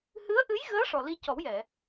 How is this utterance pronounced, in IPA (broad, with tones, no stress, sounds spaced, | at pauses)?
h ɨ˧˥ ə̯ ʔ ɨ˧˥ j ɣ əː˧˥ ʂ ɔ˨˩ l i˧ c ɔ˨˩˦ w j ɛ˨˩˨